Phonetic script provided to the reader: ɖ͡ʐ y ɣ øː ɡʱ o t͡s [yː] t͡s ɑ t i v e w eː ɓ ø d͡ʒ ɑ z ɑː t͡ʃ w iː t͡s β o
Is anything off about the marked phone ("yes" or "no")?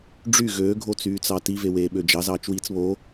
no